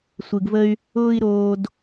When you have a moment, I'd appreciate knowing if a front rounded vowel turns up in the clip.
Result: yes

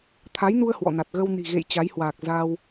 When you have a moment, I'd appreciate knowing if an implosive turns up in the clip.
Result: no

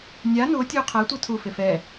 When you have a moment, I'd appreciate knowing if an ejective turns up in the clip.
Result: no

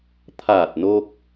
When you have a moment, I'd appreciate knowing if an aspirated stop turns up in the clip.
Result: yes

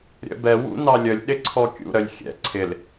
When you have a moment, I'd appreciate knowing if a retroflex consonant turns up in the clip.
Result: no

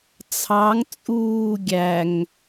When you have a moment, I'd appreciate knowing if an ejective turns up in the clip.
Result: yes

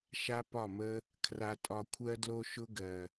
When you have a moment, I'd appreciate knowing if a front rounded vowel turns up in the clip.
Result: no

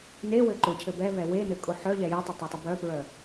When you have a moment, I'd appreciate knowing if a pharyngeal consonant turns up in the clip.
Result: yes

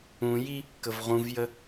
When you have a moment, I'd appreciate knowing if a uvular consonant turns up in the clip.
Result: yes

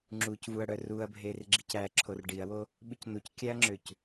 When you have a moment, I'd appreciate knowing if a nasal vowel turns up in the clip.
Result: no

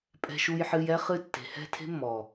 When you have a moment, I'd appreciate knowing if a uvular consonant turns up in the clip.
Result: yes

